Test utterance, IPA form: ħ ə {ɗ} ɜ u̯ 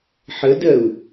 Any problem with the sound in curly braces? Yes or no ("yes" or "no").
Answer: yes